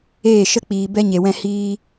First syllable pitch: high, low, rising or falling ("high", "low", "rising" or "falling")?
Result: falling